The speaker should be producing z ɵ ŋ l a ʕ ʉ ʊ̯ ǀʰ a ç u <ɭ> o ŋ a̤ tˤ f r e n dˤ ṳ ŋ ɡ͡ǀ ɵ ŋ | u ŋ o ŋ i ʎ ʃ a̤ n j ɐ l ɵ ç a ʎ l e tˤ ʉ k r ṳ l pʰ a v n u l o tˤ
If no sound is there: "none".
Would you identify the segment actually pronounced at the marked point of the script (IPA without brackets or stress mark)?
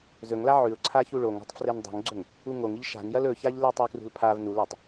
ɭ